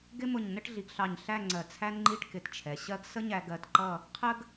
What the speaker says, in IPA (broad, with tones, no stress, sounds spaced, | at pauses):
ɡ ɪ˥ m ʊ˧˩ ɲ n ə˥˧ ʈ ɮ i˩˧ ɡ ɬ ɑ˧˩ ɲ ɬ æ˥˧ ŋ͡ǀ ɜ˧˩ t͡sʰ æ˥ n ŋ͡ǃ i˥˧ ʈ k ɪ˧˩ t t͡ʃʰ ɛ˩˧ ɕ ɜ˥ ɡ s ə˥ ɲ æ˧ ɡ ɜ˧˩ t ǃ ʌ˥˧ | qʰ ə˥ ɡ